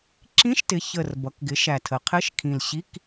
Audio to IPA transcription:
ǁĩ˧˥˧ʃtɪ˩˥çə˨˩r bʌ˩˧kɡɪ˩˥ ʃæ˨˩tʰə˩˧qʰɪ˧˥˧ʃkʰĩ˨˩l ɕi˧˥˧k

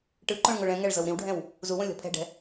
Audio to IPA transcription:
ʈɯǃõɭ ŋoɭɛ̃ŋɛɭ zɤwɾĩwɖʱɛ̃w | zuwõ lʲɔ̤pʰɛ̤ɖɛ̤

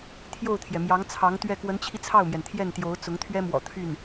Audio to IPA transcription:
t̪ʰjo˥˩ʊ̯t̪ʰjɛ˩mjɑ˧˥ŋ t͡sʰɑ˧˥ŋt̪ɥɛ˥˩ kwə˧˥nt͡ɕʰi˧ t͡sʰɑ˥˩ʊ̯mjɛ˩n t̪ʰjɛ˥˩nt̪jo˧˥ʊ̯t͡sʊ˧˥ŋ t̪ʰɥɛ˥mwɔ̰˨˩ t̪ʰy˥˩n

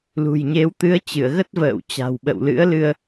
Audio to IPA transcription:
lṳ˨˩jɲe˨˦w t̪ɨ˨˦ə̯t͡ɕɨ˧˩ə̯ ɣə˦˥t̚və̰ː˧˨w t͡ɕa̤˨˩wɓə̰˧˨w lɨ̰˧˥ə̯lɨ˧ə̯

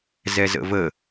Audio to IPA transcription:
zɛzə̰və

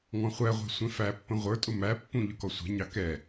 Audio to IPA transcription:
ŋɔ̃χʷæʁʷɛ̤ sʷɛ̃fæpːə̃ ʁʷə˞tʼʊ mæpːũ ʎʊkɔsʷɛ̤ɲɑ kɛ

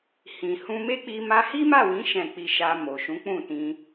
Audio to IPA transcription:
hĩ˨hũ˧ me˦k͡pi˧ ma˧hi˦ma˦˨wĩ˨˦ ʃɛ̃˦˨ k͡pi˧ʃa˧ mo˨ʃũ˨˦k͡pũ˦˨ tĩ˧

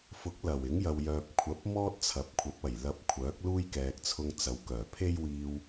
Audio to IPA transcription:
fʊ˨˥k̚ lɐ˨˩wɪ˨˥ŋjɐ˨wjœː˨p̚ kʷʰɐ˨˥p̚mɔː˥t̚ t͡sʰɐ˨˥p̚ kʷʰɐ˨˥p̚ɐ˨˩j lɐ˧p̚kʷʰœː˨˥k̚luː˥j kɛː˨k̚t͡sʰʊ˧ŋt͡sɐ˨˧w kœː˨˩pʰe˥jwiː˧w

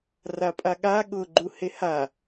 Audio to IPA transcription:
rapʼaɠa ɠʊɡ͡ǃu heha

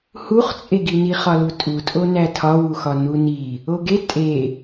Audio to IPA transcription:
huχt͡sʼeɡini χɒlutʼutʼo nætʰɒwuxɒ nuni | oɡe tʼe

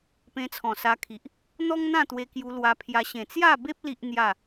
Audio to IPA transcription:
pẽ˧t͡sʰɔ̃˨˩ sa˧kʰi˨ʔ | n̪ɔ˦ŋn̪ã˥˧t̪we˧ kju˧lwa˧pʰja˧ ɕẽ˨˩t͡sja˥˧be˦p̚ li˦ʔn̪ja˥˧

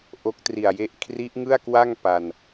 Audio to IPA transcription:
ʔo˦˥k̚tri˨˩a̯je˥˩ʔ kʰri˦˥ʔŋɯ˥˩a̯kwa˥˩ŋ pa˧n

